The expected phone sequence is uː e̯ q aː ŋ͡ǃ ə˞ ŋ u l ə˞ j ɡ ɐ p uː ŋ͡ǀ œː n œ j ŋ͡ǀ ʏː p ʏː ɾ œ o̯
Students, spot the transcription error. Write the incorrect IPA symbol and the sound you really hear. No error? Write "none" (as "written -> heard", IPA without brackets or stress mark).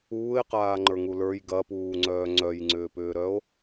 n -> ŋ͡ǀ